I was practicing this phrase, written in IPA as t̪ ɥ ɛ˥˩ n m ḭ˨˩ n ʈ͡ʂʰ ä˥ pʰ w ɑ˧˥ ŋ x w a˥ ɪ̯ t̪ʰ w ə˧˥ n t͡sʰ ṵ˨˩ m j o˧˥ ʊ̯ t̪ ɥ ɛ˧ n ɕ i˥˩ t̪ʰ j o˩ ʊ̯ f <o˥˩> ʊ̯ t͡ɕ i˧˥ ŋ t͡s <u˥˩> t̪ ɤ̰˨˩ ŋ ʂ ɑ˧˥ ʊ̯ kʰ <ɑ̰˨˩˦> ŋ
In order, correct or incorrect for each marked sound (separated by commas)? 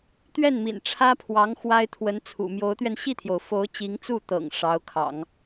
incorrect, correct, correct